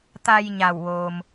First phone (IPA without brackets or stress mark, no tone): t̪